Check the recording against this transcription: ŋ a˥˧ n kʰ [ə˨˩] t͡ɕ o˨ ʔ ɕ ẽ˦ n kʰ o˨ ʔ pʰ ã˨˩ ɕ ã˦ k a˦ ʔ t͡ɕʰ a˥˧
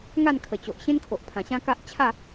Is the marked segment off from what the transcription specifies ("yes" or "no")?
no